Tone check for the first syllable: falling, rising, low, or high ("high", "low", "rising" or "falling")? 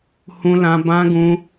high